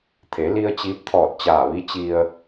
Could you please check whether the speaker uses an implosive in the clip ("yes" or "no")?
no